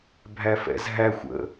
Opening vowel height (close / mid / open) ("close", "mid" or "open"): open